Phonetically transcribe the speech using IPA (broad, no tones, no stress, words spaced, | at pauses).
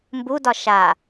mbudɒ ʃa